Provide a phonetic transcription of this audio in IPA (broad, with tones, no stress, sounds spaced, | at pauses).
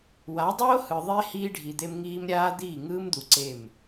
w a˨˦ dˤ oː˦ h ɯ˨ ðˤ e˦ h iː˦ ɖʱ i˨ d̪ e˦ m ŋ iː˦ m ɾʲ aː˦ d̪ iː˦˨ ŋ ɯː˦ m d̪ u˨ ǀ e˦˨ m